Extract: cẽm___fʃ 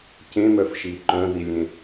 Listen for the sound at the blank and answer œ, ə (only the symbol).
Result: œ